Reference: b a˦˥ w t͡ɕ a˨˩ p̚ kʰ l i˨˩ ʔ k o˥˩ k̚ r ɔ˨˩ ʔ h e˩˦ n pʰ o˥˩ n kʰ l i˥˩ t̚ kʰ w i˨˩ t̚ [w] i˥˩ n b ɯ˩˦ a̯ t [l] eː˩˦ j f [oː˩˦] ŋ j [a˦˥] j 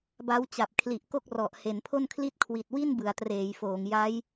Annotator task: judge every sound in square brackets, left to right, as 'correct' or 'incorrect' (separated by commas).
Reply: correct, incorrect, correct, correct